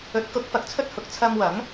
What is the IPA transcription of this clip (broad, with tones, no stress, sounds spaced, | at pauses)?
ɵ˨˥ t̚ k ʊ˨˥ k̚ f ɐ˨ k̚ t͡sʰ ɵ˥ t̚ h ʊ˨ k̚ t͡sʰ ɐ˧ m w ɐ˨˥ ŋ